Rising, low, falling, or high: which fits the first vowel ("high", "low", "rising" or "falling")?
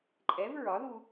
rising